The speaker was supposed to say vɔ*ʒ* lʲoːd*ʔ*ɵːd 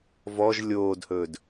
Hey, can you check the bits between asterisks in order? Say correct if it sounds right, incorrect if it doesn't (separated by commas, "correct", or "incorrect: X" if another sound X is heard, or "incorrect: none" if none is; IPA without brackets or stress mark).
correct, incorrect: h